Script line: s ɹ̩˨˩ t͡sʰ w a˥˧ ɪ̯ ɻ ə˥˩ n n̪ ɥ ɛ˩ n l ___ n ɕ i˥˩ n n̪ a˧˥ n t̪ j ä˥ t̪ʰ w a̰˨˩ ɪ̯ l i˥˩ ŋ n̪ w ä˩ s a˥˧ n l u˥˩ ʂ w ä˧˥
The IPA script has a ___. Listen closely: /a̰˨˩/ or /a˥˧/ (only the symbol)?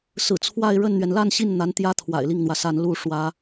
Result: a˥˧